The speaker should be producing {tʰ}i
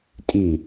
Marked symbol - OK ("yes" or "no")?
no